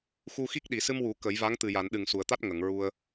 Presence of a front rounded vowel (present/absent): absent